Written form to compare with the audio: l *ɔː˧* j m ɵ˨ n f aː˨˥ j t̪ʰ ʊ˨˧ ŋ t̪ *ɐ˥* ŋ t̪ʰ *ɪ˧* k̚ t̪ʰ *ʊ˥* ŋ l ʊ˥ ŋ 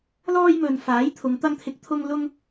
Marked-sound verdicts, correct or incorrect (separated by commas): incorrect, correct, correct, correct